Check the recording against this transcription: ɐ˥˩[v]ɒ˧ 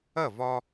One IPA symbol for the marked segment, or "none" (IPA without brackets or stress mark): v